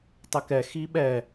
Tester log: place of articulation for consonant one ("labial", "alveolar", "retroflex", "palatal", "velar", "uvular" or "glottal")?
alveolar